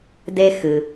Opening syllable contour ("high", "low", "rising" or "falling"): high